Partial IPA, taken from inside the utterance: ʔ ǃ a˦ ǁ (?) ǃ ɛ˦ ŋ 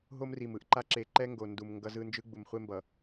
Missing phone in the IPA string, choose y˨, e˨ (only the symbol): e˨